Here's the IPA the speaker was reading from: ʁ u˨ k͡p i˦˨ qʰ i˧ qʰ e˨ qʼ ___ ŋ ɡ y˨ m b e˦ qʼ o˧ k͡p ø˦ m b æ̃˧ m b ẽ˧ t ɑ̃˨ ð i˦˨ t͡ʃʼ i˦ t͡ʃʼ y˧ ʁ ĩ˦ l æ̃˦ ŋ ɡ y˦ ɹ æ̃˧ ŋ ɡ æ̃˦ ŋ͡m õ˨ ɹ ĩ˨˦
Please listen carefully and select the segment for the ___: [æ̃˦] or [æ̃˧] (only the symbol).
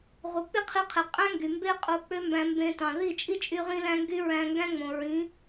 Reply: æ̃˦